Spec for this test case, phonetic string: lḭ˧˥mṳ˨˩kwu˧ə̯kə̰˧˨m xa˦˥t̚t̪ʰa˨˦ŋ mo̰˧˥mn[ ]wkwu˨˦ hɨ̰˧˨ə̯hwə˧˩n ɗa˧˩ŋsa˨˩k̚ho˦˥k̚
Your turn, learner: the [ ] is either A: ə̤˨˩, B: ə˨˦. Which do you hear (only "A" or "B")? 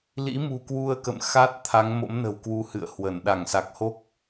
A